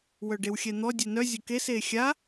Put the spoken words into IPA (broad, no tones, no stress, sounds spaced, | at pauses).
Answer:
w œ ɖ e w xʲ ɛ n̪ ɔ dʲ e n œ zʲ ʊ k e s e xʲ a